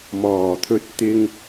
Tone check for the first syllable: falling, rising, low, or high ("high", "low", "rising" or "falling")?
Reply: low